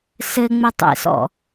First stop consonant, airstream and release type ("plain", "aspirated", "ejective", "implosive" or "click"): plain